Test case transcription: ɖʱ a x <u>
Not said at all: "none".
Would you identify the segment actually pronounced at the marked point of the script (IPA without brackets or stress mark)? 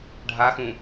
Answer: ũ